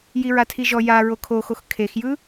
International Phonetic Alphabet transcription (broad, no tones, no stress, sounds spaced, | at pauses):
j i ɹ a tʰ i ʒ ɔ j a ɹ o kʰ o x o x kʰ e x j ɯ